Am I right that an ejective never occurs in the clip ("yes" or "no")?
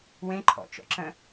yes